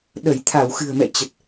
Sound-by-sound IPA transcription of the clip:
ɗə˧˩jt̪ʰa˧˩w xɨ̤˨˩ə̯mɛ̰˧˨t͡ɕə˨˩t̚

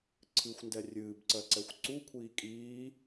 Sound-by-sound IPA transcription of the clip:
ǀʰɨxʷndɛ rʲɨːbǀɜǀɛxʷ ǀukʷʰiː kʼiː

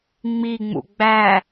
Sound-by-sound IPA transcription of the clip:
ŋ͡miŋ͡mṵ ɡ͡bæ

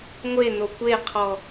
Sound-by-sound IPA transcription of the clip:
ŋʷeno kʷeqʰɔ

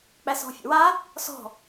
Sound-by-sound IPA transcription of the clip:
k͡pæsɔ̤fʲə̰wa | sɔ̤

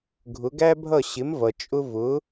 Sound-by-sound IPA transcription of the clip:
ɡʱʊ˩˥ɡæ˥bʱʌ˥˩ ɕɪ˩˥mvʌ˩ t͡ʃʼʊ˥ vʊ˩˥

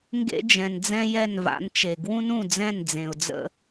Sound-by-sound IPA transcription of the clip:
ŋɡḛ˥d͡ʒɛ̃˩nd͡zɛ̃˥ jɛ˥˩nva̰˩˥nt͡ʃe˩ ɡwũ˥nũ˥˩d͡zɛ̃˥˩nd͡zẽ˩ʊ̯ d͡zə̰˧

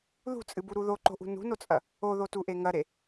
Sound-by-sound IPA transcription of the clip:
ðṳt͡sʼɨbuɾu ðoǃo̤ʔṳ nṳnot͡sʼɐ | oðotuʔe ŋɐɾe

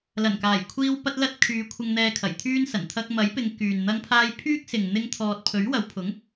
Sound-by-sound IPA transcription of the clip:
lɐ˨˩nkaː˨˩jkʷʰiː˧w pɐ˥t̚lɐ˥t̚ kʰyː˨˧kʷʰɪ˧ŋn̪ɛː˧ kʰɐ˨˩jt̪ʰyː˥nsɐ˨˩n t̪ʰɐ˧k̚mɐ˨˥jpɪ˨˧ŋ kyː˨nn̪ɐ˥ŋpʰaː˥j pʰyː˥k̚sɪ˨ŋ n̪ɪ˥ŋt̪ʰɔː˧t̚ pʰɵ˨˥ɥwɐ˨˧wpʰʊ˨˥ŋ

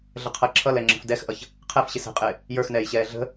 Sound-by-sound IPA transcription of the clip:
ɮəqʰʌ ǁʰʌlɛŋ͡ǁə̤f dɛxʔʌç | qʰɛfɕɪ sɛ̤qʼɪː | jə˞xnɛːjɕɛː ɮə̤

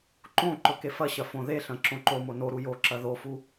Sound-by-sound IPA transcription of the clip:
ǃõ ǃɵkefɐɕɐ fõðeɬɐ̃ ǁõǃomo no ɾujoǁɐ ðofu

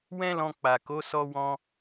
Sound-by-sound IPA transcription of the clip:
wɛ̃˦lɔ̃˧ k͡pa˨ko˨˦ sɔ˦wɔ̃˦

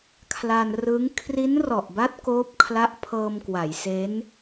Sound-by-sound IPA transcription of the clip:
kʰla˧n rɯ˦˥ŋ kʰri˦˥nrɔ˨˩ʔba˦˥t̚ koː˦˥p̚kʰla˦˥ʔ pʰɤː˧mkwa˩˦jse˦˥n

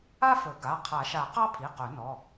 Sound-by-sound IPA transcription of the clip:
a˥fɵ˨˩˦ɡa˩˧˩ qʰa˨˩˦ʃa˨˩˦ qɑ˥pʰi˩˧˩qɵ˨˩˦ nɔ˩˧˩

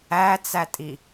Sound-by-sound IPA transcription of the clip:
æt͡sætʼi

